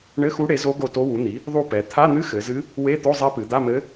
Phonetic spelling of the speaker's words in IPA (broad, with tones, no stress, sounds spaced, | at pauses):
ɳ ɘ˧˥˧ x u˧˥ ɽ e˩˥ z o˧˥ ɡ o˦˨ t o˧˥ w u˩˥ n̪ i˩˥ | ðˤ u˦˨ p ɛ˩˧ t̪ʰ a˧˥˧ n̪ ɨ˧˥˧ x ɘ˩˧ z ɨ˧˥ | w e˧˥˧ t̪ o˧˥˧ zˤ e˧˥ p ɨ˩˧ d̪ a˧˥˧ m ɘ˧˥